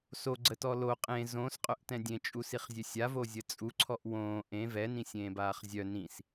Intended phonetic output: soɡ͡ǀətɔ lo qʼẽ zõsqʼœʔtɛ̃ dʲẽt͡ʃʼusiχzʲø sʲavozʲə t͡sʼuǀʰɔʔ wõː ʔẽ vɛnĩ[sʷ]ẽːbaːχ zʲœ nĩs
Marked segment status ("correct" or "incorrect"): incorrect